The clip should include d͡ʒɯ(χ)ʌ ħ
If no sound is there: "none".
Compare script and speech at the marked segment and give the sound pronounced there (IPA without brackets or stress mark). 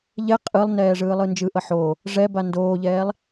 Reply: ʔ